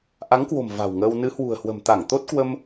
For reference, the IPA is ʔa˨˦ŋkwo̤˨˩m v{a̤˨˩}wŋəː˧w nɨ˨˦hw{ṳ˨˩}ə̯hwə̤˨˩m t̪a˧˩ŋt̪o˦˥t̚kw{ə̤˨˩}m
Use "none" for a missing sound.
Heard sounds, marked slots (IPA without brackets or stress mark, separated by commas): a̤˨˩, ṳ˨˩, ə˧